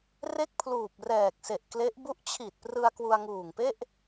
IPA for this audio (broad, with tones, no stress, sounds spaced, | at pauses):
r e˥˩ k̚ pʰ l uː˨˩ p̚ r ɛː˨˩ k̚ s e˨˩ ʔ k l e˦˥ ʔ b u˦˥ ʔ t͡ɕʰ i˨˩ t̚ p r ɯ˧ a̯ k w u˧ a̯ ŋ uː˨˩ ŋ p e˥˩ ʔ